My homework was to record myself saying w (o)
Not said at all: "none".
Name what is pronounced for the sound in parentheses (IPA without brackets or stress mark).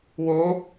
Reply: o